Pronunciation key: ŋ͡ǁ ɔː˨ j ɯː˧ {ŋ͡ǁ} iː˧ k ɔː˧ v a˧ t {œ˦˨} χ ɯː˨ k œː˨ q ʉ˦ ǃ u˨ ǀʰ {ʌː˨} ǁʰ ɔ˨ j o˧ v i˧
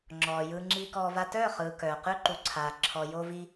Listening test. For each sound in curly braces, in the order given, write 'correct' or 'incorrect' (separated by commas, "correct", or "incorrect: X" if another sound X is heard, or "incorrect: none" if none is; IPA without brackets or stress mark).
correct, incorrect: œː˦˨, incorrect: aː˨